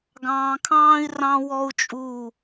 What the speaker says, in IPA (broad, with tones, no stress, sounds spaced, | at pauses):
ɡ ɑ̃ː˨ kʰ ɑ̃ː˦ i̯ r ɑ̃˦ w ɔ˦ u̯ t͡ʃʼ uː˦˨